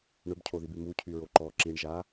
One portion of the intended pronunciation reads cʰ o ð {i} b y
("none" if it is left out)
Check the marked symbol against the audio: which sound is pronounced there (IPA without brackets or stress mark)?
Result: i